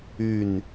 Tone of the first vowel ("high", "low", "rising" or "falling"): low